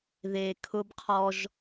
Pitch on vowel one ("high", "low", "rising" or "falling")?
low